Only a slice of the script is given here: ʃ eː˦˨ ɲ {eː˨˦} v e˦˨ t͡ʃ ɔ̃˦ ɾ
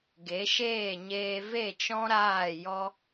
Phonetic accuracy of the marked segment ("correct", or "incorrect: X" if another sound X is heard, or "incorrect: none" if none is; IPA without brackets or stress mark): incorrect: eː˧